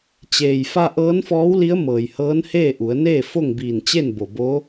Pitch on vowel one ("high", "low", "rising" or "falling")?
low